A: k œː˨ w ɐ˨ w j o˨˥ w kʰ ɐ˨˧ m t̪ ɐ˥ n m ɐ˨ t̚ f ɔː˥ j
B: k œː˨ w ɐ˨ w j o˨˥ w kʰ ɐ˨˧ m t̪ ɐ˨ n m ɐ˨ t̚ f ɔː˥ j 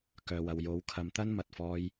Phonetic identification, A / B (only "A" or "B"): A